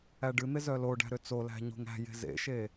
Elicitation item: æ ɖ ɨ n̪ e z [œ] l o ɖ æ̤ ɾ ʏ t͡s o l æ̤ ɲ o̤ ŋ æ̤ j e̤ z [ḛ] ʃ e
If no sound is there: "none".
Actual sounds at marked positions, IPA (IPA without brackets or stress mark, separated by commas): œ, ḛ